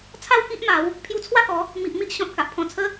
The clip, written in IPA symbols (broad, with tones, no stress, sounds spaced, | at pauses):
t͡sʰ a˥˧ w k i˦ ʔ m a˨˦ w | pʰ j u˧ t͡sʰ w a˥˧ k ɔ˨˦ | m i˨ ʔ m i˦ ʔ ɕ ɔ̃˨ t̚ k a˨ ʔ pʰ ɔ̃˧ t͡sʰ ə˦